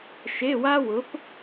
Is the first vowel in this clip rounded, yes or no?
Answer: no